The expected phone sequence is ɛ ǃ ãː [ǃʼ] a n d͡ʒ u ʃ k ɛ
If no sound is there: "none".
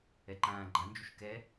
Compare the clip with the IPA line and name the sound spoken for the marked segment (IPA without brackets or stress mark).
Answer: ɡ͡ǃ